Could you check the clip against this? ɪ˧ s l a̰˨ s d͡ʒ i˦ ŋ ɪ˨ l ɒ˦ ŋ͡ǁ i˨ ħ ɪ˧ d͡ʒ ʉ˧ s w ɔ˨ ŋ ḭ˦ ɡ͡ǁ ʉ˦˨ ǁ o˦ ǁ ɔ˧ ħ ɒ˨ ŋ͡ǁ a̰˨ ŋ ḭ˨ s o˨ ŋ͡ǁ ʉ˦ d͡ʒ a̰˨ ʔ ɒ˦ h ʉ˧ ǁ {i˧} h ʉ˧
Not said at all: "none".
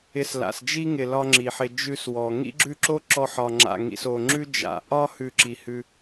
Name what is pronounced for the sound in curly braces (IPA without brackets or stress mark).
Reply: i˨